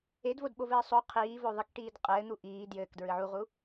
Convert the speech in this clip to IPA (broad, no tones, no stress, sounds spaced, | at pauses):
e d v o d ɓ o v ɘː sˤ o qʰ iː v o ðˤ ɨ k ʈ iː d qʼ ɘː n̪ u ʔ iː d j ɘː k d ɹ ɨ ʕ u ʁ u